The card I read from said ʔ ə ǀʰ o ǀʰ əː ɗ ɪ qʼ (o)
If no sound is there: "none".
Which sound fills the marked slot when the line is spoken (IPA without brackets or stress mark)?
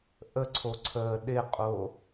o